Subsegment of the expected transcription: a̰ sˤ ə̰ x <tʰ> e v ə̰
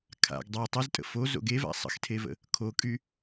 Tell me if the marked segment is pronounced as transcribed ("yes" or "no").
yes